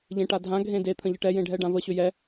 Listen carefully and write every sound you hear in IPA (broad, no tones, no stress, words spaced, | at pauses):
ʎẽʈadʱã ɡʱẽde t̪ʰə̃ʎəʈɛ jẽɖʱɛɖãvə ɕʏjɛ